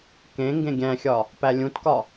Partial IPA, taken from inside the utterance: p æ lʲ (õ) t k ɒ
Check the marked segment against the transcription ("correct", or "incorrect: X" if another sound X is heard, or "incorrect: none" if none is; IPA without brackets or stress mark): incorrect: ũ